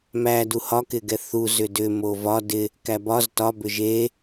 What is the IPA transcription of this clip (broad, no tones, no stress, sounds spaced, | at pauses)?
m æ d u h ɒ k ɪ ɡ ɛ θ u z ʏ d ʏ m o v ɒ d ɪ | k æ b ɒ z t ɒ b ʏ ʒ e